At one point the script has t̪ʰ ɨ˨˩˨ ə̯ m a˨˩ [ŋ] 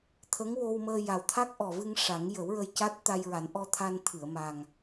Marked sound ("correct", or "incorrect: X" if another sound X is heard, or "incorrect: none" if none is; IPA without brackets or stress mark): correct